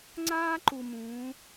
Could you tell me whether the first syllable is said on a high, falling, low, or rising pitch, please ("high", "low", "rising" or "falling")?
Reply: high